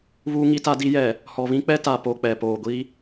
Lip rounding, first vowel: rounded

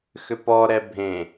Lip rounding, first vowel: rounded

